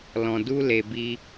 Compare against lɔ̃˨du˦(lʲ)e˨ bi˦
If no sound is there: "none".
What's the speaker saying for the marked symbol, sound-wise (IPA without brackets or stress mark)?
l